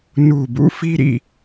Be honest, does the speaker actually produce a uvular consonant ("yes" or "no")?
no